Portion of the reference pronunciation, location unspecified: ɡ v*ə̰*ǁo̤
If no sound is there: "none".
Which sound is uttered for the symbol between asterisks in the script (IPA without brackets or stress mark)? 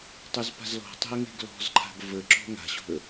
ə